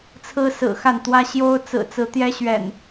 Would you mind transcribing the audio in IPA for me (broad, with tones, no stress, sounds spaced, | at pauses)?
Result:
t͡sʰ ɹ̩˦ s ɹ̩˨˩ x a˥˨ n t̪ w ä˦ ɕ j o˦ ʊ̯ t͡s ɹ̩˨˩ t͡s ɹ̩˨˦ t̪ j ɛ˦ ɕ ɥ ɛ̰˨˩ n